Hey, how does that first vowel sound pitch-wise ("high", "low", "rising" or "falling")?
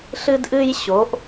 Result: high